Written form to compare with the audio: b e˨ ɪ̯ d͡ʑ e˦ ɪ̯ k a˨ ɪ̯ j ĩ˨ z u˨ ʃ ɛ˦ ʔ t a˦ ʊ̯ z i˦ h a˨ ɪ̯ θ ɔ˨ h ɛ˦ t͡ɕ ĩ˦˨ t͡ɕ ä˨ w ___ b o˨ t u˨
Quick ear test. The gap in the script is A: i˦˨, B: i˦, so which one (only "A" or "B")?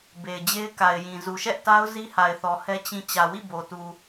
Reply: A